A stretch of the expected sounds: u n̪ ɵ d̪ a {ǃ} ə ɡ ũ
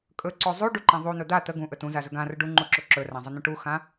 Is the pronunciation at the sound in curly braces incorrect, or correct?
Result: incorrect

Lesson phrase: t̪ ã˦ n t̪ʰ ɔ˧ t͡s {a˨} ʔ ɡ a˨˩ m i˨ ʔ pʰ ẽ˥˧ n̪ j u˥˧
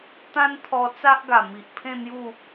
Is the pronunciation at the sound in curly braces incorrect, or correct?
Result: incorrect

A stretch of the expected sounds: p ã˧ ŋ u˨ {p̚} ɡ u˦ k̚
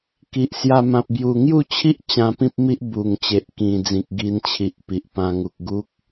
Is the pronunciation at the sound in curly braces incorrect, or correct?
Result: incorrect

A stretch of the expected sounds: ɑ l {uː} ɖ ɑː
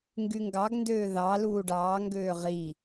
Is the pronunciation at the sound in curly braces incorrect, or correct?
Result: correct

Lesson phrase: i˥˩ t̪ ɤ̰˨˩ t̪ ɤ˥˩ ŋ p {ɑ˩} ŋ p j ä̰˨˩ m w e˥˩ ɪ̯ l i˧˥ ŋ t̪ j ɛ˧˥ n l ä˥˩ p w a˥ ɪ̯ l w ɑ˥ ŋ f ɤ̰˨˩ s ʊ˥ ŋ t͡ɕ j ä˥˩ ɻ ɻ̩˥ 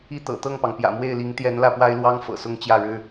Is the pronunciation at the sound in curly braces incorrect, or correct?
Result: correct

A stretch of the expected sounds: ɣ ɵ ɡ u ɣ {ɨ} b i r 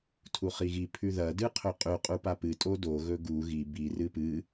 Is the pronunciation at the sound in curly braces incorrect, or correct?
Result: incorrect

